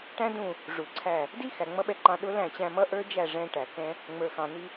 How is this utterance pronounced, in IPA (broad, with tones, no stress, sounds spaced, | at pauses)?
ʈ æ̃˦ d ũ˦˨ | ʐ u˨ ǀʰ æ˦˨ | d i˦ x æ˨ ŋ͡m ʌ˦ ɓ ɛ˧ ǃ ɑ̃˧ ɗ ʊ˦ l æ̃˦˨ t͡ɕ æ̃˧ m ʌ˦ ʔ ə˞˦ d͡ʒ æ˦˨ ʐ ɛ̃˧ ʈ æ˨ k ɛ̃˦ | ŋ͡m ə˞˨ x ɑ̃˨ n i˧